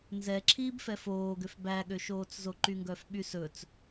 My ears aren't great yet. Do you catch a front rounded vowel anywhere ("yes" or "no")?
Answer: yes